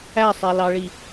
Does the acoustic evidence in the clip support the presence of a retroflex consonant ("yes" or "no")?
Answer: yes